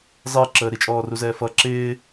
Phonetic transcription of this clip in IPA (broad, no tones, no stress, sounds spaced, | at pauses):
zˤ ɪː ǁ əː ɾ i t͡ʃʼ ɔː r u z ɛː f ʌ ǁ ɪː